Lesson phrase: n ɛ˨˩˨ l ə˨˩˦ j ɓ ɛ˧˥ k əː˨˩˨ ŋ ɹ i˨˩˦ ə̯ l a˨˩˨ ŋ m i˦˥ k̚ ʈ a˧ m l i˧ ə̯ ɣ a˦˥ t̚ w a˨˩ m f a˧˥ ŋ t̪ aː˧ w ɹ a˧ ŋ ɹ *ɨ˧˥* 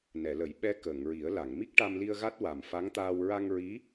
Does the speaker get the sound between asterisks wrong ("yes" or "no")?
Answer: yes